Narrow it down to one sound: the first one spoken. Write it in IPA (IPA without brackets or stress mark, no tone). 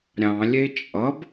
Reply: ɾʲ